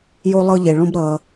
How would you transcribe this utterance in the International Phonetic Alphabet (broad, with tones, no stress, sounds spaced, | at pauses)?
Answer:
j o˧ lˠ ɤ˧ ʎ e˩ ɭ õ˧ b ɾ ʌ˩